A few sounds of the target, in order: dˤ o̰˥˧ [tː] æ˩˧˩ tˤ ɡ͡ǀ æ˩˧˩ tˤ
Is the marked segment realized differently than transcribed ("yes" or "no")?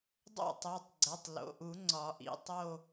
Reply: yes